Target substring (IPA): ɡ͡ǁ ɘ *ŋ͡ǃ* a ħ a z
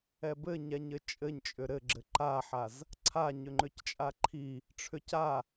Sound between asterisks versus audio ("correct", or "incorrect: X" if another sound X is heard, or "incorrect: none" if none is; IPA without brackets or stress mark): incorrect: ǃ